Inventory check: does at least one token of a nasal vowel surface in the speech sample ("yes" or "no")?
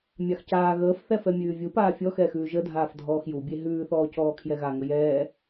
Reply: no